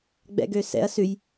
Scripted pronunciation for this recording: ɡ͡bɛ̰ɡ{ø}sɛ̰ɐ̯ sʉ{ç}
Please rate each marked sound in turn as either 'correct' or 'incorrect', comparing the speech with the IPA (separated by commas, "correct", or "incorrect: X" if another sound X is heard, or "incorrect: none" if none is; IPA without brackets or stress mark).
correct, incorrect: j